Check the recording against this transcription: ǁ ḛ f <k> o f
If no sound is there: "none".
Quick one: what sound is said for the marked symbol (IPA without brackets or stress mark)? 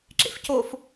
c